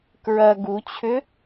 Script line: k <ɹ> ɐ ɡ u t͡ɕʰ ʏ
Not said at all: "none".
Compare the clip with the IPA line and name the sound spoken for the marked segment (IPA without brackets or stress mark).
ɹ